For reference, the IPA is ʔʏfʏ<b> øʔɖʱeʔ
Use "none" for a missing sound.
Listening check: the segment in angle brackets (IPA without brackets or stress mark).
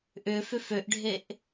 f